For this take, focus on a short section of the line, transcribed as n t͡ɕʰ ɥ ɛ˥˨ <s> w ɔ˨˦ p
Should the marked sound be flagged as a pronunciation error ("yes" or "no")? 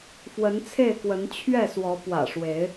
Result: no